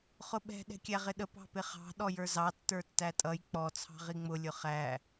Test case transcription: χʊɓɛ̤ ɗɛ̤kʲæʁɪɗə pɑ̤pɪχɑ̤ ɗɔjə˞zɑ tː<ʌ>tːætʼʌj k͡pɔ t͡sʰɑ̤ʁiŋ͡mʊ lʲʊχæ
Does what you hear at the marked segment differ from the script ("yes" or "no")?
yes